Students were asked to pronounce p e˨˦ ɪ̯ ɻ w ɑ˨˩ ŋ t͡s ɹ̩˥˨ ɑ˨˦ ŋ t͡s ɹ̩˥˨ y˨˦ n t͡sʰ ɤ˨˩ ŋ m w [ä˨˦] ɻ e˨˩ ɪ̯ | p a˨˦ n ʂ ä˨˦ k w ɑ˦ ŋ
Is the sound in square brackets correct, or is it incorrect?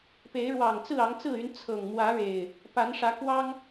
correct